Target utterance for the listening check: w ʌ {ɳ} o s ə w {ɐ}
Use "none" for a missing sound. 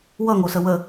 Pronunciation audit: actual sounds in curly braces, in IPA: ŋ, ə

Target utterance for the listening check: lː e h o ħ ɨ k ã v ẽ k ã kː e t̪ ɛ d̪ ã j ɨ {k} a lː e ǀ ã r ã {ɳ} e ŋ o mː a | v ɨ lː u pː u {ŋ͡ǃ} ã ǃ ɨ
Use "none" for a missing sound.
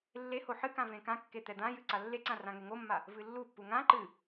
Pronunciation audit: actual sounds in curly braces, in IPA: ǀ, ŋ, ŋ

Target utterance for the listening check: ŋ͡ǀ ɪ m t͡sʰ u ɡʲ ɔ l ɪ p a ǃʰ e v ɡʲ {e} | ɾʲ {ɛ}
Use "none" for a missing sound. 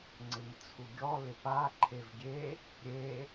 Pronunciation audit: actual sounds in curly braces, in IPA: e, e

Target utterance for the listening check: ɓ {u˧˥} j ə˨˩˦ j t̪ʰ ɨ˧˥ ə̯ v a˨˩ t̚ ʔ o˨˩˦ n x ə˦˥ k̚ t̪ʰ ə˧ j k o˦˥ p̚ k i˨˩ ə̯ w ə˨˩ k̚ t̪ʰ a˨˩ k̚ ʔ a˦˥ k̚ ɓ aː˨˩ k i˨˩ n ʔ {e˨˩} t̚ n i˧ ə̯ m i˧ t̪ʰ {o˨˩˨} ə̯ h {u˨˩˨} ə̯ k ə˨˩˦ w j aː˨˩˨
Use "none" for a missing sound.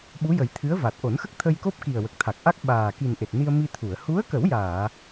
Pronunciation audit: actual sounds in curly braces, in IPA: u˧˥, e˨˩, u˨˩˨, u˧˥

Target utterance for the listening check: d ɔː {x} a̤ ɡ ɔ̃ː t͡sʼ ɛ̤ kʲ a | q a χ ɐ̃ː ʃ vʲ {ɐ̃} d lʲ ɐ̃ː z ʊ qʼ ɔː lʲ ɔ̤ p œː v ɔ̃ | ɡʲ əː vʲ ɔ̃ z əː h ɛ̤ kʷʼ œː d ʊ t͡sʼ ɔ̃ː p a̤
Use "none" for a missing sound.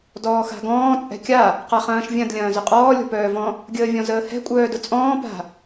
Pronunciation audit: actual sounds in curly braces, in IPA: x, ɐ̃

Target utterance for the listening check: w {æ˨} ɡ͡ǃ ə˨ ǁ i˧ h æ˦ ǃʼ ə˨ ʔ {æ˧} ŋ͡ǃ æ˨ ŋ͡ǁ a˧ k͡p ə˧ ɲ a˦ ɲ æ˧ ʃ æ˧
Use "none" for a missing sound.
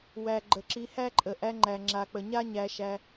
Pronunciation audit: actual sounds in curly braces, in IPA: æ˨, æ˧

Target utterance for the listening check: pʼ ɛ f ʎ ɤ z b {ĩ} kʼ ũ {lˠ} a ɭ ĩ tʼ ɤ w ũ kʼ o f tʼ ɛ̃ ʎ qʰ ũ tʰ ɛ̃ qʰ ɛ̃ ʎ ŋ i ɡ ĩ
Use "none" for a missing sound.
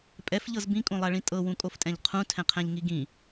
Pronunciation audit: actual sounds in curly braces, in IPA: ĩ, lˠ

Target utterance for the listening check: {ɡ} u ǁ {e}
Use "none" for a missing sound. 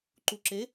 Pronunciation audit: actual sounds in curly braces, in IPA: ǃ, e

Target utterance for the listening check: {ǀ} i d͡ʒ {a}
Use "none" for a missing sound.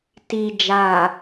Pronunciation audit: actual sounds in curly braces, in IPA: t, a

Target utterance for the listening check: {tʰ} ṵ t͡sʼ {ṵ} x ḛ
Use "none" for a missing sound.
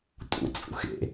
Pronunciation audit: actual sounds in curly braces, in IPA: tʼ, ṵ

